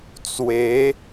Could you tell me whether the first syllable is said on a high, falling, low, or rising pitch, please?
rising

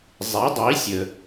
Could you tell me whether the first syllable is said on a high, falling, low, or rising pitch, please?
rising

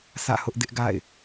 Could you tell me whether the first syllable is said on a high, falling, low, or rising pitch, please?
falling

